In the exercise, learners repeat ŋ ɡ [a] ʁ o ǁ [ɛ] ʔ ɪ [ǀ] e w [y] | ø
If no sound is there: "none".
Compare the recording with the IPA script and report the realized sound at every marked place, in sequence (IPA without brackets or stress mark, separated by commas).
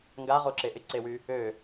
a, e, ǀ, y